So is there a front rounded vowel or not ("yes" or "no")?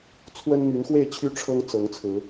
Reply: yes